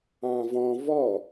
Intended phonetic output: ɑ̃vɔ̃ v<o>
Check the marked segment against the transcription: incorrect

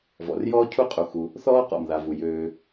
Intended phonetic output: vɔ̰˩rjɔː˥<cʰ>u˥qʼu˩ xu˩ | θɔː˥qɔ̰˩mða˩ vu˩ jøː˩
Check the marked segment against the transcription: correct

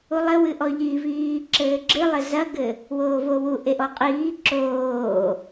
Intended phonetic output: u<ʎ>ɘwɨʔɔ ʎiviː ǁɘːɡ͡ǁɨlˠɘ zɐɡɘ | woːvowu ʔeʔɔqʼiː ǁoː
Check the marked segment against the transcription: incorrect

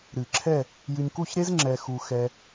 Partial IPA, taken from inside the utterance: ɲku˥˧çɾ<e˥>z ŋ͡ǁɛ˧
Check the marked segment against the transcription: correct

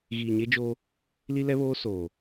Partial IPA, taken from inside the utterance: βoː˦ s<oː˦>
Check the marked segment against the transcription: incorrect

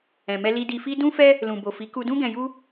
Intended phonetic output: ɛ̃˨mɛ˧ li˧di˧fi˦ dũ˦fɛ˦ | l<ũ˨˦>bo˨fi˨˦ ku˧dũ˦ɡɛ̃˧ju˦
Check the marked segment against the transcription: incorrect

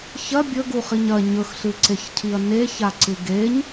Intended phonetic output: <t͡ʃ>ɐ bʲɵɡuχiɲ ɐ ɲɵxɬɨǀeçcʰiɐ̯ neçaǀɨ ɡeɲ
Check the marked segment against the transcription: incorrect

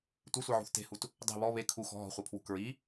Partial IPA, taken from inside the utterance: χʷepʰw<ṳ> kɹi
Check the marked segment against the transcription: correct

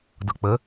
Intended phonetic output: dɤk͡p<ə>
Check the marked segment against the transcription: correct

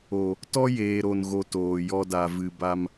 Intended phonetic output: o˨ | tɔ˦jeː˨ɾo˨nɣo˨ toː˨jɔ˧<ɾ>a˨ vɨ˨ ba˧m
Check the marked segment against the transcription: incorrect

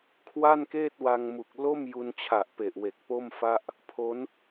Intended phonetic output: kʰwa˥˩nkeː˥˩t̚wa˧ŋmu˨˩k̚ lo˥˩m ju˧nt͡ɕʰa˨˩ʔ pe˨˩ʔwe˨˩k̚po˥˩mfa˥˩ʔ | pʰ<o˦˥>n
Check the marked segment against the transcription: correct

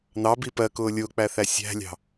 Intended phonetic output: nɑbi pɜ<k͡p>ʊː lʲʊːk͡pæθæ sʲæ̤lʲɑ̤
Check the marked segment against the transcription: incorrect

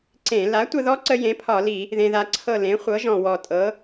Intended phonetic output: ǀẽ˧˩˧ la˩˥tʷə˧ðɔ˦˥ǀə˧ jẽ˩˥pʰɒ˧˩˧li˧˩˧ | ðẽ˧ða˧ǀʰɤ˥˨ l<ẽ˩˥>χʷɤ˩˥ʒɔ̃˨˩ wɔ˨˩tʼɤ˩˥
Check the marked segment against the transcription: correct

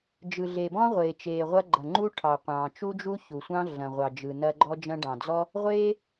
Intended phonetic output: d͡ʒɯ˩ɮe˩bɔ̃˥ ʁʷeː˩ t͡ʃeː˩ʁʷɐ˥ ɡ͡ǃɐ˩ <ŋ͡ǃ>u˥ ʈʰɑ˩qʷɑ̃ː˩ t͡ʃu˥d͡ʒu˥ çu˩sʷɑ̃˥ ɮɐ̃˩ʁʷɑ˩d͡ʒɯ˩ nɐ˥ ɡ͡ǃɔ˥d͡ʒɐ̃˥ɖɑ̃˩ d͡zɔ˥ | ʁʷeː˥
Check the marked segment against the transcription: correct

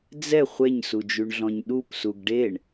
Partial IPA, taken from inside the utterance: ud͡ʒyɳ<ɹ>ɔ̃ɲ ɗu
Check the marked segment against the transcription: incorrect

